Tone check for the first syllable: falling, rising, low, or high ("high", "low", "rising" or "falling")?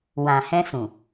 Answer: low